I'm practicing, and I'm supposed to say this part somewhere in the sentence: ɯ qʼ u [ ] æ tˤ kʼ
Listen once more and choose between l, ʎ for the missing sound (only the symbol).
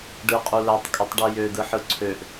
l